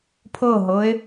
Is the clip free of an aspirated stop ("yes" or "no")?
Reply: no